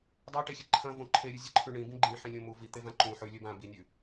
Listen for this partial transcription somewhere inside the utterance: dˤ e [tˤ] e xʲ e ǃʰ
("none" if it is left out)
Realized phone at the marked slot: ʈ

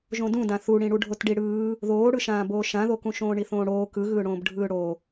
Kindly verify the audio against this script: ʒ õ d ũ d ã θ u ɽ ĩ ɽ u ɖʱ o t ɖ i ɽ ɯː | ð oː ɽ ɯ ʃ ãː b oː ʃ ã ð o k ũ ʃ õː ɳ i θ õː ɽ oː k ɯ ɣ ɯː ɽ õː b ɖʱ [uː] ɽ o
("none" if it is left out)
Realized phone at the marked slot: ɯː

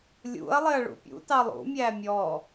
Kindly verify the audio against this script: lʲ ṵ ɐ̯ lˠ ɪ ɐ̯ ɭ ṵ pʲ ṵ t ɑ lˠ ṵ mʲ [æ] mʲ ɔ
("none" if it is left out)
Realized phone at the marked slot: æ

